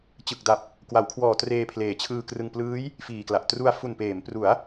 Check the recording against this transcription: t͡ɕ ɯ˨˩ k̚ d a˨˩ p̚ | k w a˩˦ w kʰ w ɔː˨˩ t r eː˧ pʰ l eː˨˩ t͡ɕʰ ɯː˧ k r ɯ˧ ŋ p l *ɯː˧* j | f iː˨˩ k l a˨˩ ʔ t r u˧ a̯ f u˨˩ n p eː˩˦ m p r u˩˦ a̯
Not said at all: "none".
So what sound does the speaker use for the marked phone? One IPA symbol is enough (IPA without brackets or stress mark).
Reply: ɯː˦˥